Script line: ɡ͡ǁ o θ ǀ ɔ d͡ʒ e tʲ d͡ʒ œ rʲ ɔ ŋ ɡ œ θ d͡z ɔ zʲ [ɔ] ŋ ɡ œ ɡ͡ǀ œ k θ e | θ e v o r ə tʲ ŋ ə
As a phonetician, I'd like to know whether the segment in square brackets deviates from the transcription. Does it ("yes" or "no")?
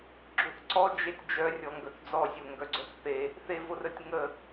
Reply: yes